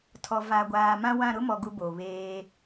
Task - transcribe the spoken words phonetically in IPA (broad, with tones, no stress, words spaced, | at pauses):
tʰɔ˨ va˨ ɡʷaː˨mã˦wã˦˨ ɾʊ˦mɔ˨ ɡu˦bo˨ βeː˦